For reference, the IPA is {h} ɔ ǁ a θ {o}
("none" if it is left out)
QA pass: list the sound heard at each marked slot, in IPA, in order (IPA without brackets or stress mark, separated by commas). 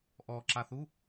ʔ, u